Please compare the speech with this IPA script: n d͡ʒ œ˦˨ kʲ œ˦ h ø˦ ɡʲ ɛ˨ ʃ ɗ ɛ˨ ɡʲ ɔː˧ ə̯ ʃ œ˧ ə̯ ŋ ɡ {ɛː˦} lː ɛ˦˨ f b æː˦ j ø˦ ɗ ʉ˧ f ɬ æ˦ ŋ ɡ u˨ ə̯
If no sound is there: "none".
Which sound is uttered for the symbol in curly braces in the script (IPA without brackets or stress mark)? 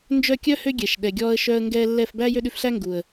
ɛː˧